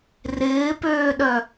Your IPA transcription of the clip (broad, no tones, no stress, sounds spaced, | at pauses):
r ɪː p øː ɗ œ